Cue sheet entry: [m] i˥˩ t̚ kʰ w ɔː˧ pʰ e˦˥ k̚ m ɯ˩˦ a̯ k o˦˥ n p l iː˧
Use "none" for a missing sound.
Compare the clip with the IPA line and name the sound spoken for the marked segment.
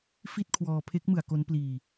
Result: f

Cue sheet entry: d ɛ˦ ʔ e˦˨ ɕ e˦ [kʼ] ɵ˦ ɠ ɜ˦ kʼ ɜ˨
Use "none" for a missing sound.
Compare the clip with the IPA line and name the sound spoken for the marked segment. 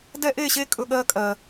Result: kʼ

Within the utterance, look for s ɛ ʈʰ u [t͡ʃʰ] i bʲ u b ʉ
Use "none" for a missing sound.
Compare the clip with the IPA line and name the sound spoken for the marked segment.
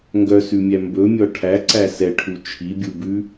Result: t͡ʃʰ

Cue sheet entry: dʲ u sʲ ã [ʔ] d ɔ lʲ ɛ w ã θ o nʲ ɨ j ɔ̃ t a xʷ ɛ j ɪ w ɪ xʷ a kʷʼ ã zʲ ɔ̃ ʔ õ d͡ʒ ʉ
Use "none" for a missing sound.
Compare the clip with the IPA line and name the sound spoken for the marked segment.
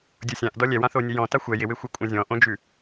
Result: ʔ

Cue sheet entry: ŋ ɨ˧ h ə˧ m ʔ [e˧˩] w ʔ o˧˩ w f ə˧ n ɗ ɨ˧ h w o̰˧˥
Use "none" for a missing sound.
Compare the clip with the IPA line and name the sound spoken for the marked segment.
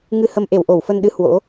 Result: e˧˩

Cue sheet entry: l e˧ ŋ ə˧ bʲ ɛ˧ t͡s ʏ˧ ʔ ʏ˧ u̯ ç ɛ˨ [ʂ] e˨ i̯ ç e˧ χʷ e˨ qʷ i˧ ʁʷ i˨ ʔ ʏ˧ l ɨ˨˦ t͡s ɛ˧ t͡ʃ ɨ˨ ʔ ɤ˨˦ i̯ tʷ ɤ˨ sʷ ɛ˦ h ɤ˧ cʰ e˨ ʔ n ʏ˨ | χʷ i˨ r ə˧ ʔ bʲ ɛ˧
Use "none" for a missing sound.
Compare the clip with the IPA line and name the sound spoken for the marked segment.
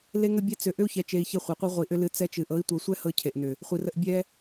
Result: t͡ʃ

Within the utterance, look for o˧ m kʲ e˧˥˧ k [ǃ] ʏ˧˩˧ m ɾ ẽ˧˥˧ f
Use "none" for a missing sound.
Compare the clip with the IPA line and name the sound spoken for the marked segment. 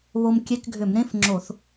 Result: ɡʱ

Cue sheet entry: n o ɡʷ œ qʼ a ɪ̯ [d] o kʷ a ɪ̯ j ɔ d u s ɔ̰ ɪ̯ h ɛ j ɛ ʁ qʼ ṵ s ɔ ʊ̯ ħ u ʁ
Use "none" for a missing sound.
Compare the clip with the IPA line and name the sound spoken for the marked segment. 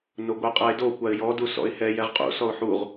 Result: d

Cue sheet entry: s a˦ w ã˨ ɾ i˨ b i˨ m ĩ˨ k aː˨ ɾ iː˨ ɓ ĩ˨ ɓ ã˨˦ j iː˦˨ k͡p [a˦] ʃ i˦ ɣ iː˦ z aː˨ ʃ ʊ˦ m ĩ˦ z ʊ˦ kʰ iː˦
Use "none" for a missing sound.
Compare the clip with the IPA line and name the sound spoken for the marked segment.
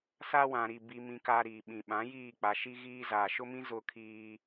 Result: a˨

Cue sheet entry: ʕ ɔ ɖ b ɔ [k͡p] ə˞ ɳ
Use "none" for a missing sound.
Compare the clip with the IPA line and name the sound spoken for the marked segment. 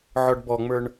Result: ŋ͡m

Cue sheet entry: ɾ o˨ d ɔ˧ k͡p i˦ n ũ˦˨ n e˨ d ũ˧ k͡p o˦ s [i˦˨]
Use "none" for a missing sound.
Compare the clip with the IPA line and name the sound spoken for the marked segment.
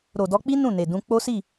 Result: i˦˨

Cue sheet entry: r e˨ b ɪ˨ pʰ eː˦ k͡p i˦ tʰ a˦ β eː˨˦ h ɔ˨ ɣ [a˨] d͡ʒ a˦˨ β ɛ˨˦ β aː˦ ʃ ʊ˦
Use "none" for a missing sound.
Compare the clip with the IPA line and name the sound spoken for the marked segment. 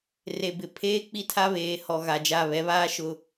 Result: a˨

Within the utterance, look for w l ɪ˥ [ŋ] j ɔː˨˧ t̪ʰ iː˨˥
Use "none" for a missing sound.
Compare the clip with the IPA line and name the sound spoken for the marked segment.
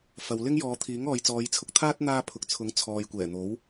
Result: ŋ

